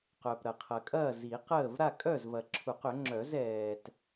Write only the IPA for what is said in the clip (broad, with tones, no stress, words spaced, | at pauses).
qœ˨pɾɐ˨qʰɐ˨ kʼɐː˥˨zi˨˩˦qəː˥˨v ɾa˥˨kʼœ˥˨zvɐ˨ǁʰu˨˩˦q ʏ˨˩˦ŋ͡ǁœ˨˩˦zɛː˨t